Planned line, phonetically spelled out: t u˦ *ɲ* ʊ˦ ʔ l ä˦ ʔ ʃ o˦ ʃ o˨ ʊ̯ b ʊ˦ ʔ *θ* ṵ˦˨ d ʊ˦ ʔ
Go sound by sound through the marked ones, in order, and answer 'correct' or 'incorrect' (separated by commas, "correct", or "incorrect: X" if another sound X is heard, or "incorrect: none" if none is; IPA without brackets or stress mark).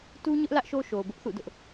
correct, correct